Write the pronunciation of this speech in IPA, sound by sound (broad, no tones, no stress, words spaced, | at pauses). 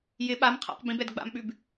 jɪ ɓam qʰa̰q bĩbɛd ɡ͡ba̰mɓʉb